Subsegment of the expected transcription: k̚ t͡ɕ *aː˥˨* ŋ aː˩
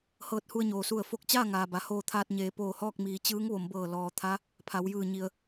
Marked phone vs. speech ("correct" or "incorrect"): correct